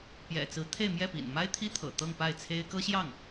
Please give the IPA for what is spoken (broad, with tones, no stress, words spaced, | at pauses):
pjɛ̰˨˩t͡sɹ̩˧˥ t̪ʰe˥˧ɪ̯mjɛ˥˩pḭ˨˩n ma˥ɪ̯t̪ʰi˥ t̪ʰɤ̰˨˩ t̪ɤ˥˧ŋpa˥˩ɪ̯ t͡sʰe˥ɪ̯ kɤ˥ɕjɑ˥˩ŋ